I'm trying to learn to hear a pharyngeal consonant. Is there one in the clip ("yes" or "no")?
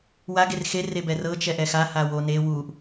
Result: no